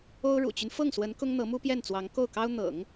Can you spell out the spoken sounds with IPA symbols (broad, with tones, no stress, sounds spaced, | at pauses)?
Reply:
o˥ ʊ̯ ɻ ṵ˨˩ t͡ɕ y˦ n f ɤ˥˩ ŋ s w ə˧˥ n k ʊ˥ ŋ n̪ ɤ˧˥ m u˥ p j ɛ˥˩ n t͡s w ɑ˧˥ ŋ k o˥˩ ʊ̯ k ɑ˥ ʊ̯ n̪ ɤ̰˨˩˦ ŋ